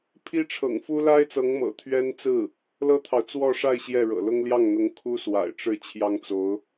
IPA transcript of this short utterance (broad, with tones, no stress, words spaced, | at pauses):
pʰi˥ʈ͡ʂʰɤ̰˨˩ŋfu˥ la˥ɪ̯t͡sɤ˧˥ŋmɤ̰˨˩ t̪ʰɥɛ˥nt͡sɹ̩˥˩ | lɤ˥t̪ʰɑ˨ʊ̯ t͡swɔ˥˧ ʂa˥˧ɪ̯ ɕjɛ˥˩ɻɤ̰˨˩lʊ˥ŋ ljɑ˥˩ŋn̪ʊ˧˥ŋ kʰu˥swa̰˨˩ɪ̯ʈ͡ʂɻ̩˥˩ t͡ɕʰjɑ˥ŋt͡so˧˥ʊ̯